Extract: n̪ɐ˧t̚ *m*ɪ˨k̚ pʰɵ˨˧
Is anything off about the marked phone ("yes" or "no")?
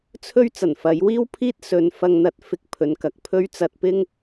yes